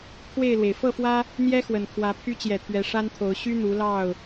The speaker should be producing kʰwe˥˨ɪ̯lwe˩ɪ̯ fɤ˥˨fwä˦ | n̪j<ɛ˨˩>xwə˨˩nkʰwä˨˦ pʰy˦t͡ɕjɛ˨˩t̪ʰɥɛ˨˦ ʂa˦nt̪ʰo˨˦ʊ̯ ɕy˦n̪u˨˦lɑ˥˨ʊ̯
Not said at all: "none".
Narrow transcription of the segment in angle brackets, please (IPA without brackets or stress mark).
ɛ˦